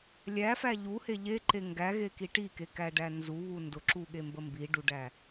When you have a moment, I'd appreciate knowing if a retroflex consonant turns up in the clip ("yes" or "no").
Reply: yes